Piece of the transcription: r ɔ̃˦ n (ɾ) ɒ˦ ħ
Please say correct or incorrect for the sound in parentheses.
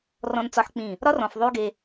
incorrect